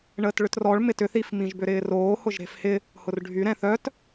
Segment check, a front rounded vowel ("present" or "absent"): present